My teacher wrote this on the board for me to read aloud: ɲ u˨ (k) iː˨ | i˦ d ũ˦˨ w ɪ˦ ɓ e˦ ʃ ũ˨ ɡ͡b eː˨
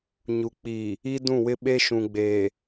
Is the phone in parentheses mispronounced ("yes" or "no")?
yes